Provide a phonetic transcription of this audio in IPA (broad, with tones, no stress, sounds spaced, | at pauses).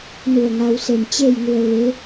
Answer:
n u˧˩ ə̯ ŋ a˧ w s e˧˩ m t͡ɕ e˥˨ j ŋ u˧ ə̯ ʋ e˧˥